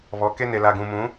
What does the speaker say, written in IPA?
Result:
β ɔ˨˦ k e˦ n e˨ l a˨ ɡ ũ˨ m ũ˨˦

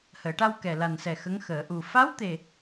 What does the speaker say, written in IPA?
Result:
h əː˨˩˨ ʈ a˧ w k ɛ˨˩ l a˨˩ n s ɛ˨˩ x ə˧˥ ŋ x əː˨˩˨ ʔ u˨˩ f a˧˥ w t̪ e˨˩

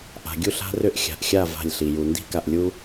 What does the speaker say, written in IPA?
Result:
ʔ a̤˨ ɡʲ u˦˨ ɬ a̤˦ r ʏ˦˨ ʔ xʲ a̤˨ ʔ xʲ a˦˨ v a̤˦˨ lʲ ɬ i˨ j u˨ n d i̤˦ k a˨ ʔ lʲ u˦

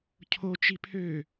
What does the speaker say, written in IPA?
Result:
cʰ o t͡ʃ i pʰ ø

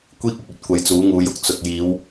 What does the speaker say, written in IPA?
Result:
kʷ iː˥ k̚ ʊ˨ k̚ ɵ˧ t̚ kʷ ɐ˨˧ j t͡s uː˨˥ ŋ uː˨˧ j ʊ˨˥ k̚ t͡s ʊ˨ k̚ j iː˨˧ w

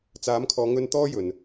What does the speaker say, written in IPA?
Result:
t͡s aː˨˥ m kʰ ɔː˨˧ ŋ ɵ˧ n t̪ ɔː˥ j ɵ˨˩ n

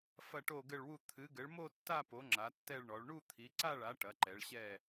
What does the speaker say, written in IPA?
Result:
f ɐ˥˧ ʈ o˥˧ ɡ ɘ˥˧ ɭ w u˥˧ t̪ʰ ɨ˨˥ ɡ ɘ˨˥ ɭ m o˥˧ tː a˥˧ p o˨˥ ŋ͡ǁ a˨˥ tː ɛ˥˧ ɭ ɳ ɔ˨˥ ɭ ɳ u˥˧ t̪ʰ i˨˥ ǀ a˥˧ ɭ a˨˥ ʈ ɐ˨˥ ǃ ɛ˨˥ ɭ ɕ ɛ˥˧

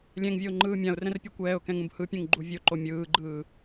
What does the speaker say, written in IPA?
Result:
lʲ ɛ̃ ŋ vʲ ɤ ʊ̯ ŋ͡ǃ ɯː mʲ ã ʊ̯ r ɛ̃ r pʲ ɤ kʷ ɛː ʊ̯ k ɛ̃ ŋ ũ b h ɯ pʲ ũ ŋ ɡ͡ǃ u vʲ o ǃ o mʲ ɯː ɡ͡ǃ ɯː

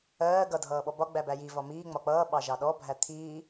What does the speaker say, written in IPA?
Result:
ɜː ɡ ʌ dʱ ʌː ɓ ɔ b ɒ ɡ͡b æ b æ j i v ɒ m iː ŋ͡m ɒ k͡p ʌː ɓ ɑ ʒ ɑ ɗ ɔ bʱ æ t̪ʰ iː

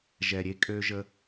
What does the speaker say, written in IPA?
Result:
ʒ ɛ˨ ɾʲ e˧ kʼ ø˧ ʒ ə˧

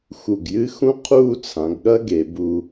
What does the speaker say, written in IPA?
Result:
x u˧˩ ɡ j ɨ˥ x ũ˥ qʰ uː˥˧ t͡sʰ ã˩˧ ɡ ɠ ɐ˥ ɡ e˩˧ b u˧

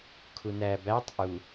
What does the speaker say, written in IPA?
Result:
kʰ u n æ b æ tˤ ʔ u

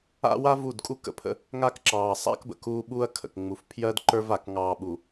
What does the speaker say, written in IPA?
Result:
a̰˦ w a˦ v u˦˨ d kʼ u˦ k ə̰˨ pʰ ə̰˦ | ŋ a˦ k ǁ ɑː˨ sˤ a̰˦ k b ə̰˨ k uː˦ ɓ uː˦ ɐ̯ kʰ ə̰˨ k ŋ͡m u˨ f pʰ j ɜ˦ d ǃ ə˞˦ v a˨ k ŋ ɑː˨ ɓ u˨

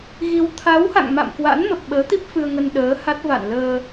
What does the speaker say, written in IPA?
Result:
ɣ i˧ w t̪ʰ a˨˦ w h a̰˧˨ ŋ m a̰˧˨ m k w a̰˧˥ n m ə˨˩ p̚ ɓ əː˨˦ t̪ i˦˥ p̚ f ɨ˧ ə̯ ŋ ə˧ n ɗ əː˨˦ h a˦˥ t̚ v a̰˧˨ n l əː˧

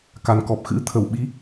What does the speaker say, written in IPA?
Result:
k a˨˩ n k ɔ˨˩ p̚ x ɨ̰˧˥ t̪ʰ ə˧˩ w ɓ i˨˦

